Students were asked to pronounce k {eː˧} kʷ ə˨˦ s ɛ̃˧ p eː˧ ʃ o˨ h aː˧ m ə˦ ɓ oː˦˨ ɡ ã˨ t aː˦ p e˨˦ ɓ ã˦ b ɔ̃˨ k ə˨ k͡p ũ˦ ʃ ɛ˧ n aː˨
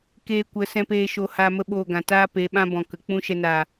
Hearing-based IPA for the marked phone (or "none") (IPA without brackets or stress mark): eː˧